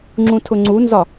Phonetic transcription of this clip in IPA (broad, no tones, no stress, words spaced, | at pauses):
ŋ͡ǁũtʰʊŋ͡ǀunzɒ